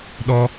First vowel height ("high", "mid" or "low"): mid